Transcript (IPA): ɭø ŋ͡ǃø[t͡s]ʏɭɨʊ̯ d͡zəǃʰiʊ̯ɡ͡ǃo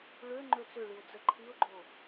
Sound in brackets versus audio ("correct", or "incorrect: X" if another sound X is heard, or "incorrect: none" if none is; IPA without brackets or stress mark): correct